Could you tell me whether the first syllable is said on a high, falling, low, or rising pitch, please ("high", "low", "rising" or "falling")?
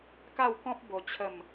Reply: falling